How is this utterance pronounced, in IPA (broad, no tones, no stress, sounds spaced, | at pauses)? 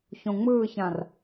ç õ ŋ͡m ɯː ç ã r